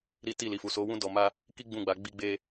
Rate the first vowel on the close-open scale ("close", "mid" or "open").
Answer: close